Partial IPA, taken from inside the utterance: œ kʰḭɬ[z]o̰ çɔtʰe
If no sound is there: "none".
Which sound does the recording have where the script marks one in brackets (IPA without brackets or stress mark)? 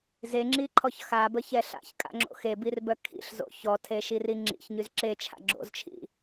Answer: z